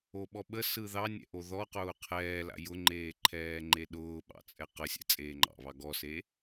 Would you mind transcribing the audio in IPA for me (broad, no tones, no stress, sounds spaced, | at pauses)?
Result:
o ɓ ɔ ɓ ə s ɯ ð ɑ nʲ ɛ̰ ʔ o ð ɔ q ʊː qʰ ɛː l a̰ j ʊ ŋ͡ǃ eː ǃʰ ɛː ŋ͡ǃ e ɗ ʊː ɓ ɑ̰ t͡sʼ ɛ q ə sʲ ɛ̰ t͡sʼ eː ŋ͡ǃ ɑ̰ β ɑ ɡ ɔ s e